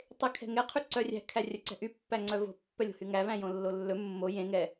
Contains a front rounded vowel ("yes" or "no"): yes